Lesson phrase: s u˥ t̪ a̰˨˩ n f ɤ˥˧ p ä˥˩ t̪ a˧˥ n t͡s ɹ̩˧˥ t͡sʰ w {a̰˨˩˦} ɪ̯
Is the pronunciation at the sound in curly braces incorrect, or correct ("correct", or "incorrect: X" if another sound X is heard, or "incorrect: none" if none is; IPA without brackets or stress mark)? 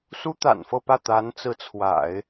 correct